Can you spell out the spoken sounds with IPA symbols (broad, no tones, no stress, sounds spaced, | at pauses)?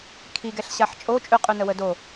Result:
kʰ i ɡ ɛ ɬ ɕ a ħ t͡ʃʼ o t͡ʃʼ ʉ qʼ ʉ n ə w ə d o